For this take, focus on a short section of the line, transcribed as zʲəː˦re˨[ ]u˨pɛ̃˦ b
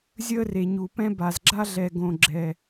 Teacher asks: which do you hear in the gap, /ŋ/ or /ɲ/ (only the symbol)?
ɲ